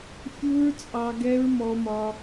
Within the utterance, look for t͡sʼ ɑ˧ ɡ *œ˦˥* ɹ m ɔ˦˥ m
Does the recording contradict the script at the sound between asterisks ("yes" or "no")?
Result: yes